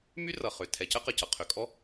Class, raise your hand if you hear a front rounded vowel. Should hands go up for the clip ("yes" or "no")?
yes